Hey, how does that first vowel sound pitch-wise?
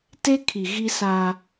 high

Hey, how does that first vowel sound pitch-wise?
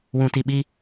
low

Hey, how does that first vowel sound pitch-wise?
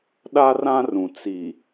high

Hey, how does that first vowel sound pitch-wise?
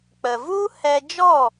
low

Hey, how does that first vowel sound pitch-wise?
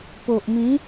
low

